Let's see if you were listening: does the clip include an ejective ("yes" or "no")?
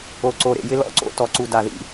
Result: no